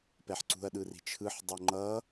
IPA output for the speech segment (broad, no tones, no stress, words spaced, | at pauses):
pɛħǀṳɐ̯ɗɯri̤ t͡ʃʰɯħdˤo ŋ͡ǃʌ